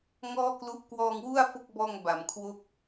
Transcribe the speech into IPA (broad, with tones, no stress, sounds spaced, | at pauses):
ŋ ɔː˥˩ k l u˦˥ ʔ k w ɔː˧ ŋ w u˥˩ a̯ f o˥˩ k̚ b ɔː˧ ŋ b a˩˦ m kʰ w o˥˩ k̚